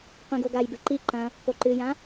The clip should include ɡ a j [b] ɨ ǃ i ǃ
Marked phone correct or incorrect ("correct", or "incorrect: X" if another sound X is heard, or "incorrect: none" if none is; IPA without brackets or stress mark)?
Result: correct